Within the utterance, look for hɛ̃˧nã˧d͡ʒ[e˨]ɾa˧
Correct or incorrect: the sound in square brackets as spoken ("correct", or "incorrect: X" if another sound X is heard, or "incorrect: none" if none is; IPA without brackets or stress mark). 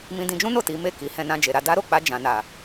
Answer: correct